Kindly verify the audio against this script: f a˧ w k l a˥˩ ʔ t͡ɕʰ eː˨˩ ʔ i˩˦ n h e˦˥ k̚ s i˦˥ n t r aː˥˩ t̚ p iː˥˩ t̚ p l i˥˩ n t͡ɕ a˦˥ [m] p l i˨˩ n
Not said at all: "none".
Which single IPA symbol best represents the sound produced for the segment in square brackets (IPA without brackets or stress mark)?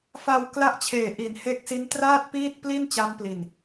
m